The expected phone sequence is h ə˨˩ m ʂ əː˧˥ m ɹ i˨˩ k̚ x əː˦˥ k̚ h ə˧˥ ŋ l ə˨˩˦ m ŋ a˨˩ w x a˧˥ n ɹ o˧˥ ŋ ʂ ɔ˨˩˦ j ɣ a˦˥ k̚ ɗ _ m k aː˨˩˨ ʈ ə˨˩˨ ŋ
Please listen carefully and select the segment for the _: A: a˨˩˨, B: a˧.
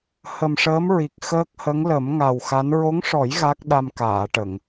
B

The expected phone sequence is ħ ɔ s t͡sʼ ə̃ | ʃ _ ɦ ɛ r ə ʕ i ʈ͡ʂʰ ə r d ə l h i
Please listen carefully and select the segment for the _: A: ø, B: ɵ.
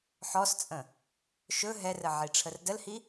B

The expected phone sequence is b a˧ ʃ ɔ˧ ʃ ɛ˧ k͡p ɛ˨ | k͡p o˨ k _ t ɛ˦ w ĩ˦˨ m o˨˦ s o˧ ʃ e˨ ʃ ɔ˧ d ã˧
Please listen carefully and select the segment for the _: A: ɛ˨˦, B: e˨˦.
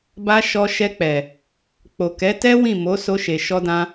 A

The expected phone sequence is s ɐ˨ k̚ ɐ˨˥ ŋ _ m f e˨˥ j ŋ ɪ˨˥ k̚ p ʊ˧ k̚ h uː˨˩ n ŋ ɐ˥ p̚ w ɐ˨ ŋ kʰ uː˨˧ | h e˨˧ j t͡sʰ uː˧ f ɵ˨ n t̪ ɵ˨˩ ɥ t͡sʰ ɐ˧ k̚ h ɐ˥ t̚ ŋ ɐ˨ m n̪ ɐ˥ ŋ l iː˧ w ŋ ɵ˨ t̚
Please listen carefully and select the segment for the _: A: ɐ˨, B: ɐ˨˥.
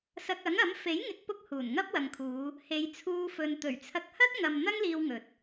B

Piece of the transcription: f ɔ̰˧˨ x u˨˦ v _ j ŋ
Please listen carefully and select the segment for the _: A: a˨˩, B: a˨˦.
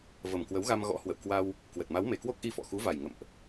A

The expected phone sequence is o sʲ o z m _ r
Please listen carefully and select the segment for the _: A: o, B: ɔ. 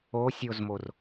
A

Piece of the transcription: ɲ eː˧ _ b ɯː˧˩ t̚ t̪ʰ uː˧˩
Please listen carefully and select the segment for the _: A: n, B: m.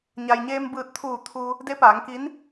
B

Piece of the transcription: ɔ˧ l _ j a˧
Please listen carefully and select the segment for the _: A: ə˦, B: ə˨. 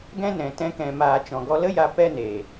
A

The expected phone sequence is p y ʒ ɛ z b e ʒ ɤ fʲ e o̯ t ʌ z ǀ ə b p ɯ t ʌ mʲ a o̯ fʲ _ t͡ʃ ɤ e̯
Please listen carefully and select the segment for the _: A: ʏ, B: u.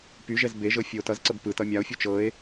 B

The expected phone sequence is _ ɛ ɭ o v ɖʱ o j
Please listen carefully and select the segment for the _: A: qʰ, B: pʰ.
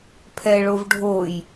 B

